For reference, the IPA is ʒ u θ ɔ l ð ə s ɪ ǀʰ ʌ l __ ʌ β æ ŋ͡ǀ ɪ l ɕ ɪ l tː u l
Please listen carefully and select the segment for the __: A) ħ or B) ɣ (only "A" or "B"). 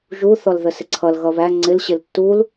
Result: B